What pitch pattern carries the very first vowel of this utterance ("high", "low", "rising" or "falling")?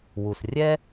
low